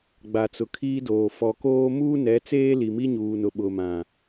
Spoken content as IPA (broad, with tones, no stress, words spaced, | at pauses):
ɡ͡ba˨t͡sʊ˨kʰiː˦doː˨ fɔ˨koː˦ muː˦nɛ˨˦t͡seː˦ li˨mi˦ɲuː˨nʊ˨ ɓʊ˨ mã˨